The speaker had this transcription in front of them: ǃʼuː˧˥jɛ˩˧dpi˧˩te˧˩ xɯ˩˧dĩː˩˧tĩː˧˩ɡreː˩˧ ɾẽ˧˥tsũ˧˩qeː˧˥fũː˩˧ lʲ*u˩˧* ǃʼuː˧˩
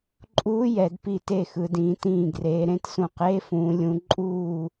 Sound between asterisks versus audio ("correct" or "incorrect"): incorrect